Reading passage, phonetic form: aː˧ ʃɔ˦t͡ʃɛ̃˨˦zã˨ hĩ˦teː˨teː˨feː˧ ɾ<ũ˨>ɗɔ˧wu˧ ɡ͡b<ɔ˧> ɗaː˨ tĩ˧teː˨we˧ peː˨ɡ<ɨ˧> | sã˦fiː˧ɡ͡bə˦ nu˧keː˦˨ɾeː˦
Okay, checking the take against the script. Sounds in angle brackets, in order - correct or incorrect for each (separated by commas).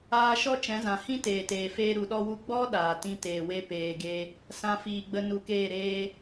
incorrect, incorrect, incorrect